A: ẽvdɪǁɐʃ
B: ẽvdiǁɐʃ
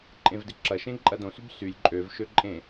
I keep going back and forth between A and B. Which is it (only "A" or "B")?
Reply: A